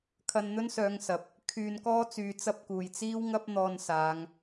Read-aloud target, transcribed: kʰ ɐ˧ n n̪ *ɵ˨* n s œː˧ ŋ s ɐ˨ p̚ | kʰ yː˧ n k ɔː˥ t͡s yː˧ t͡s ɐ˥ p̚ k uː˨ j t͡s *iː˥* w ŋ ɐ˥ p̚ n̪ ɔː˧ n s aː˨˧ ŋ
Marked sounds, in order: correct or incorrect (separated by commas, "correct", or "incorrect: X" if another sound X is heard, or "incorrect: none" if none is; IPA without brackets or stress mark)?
incorrect: ɵ˥, correct